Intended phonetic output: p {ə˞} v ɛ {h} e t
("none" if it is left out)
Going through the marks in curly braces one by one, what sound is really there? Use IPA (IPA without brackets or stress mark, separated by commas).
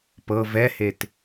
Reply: ɤ, h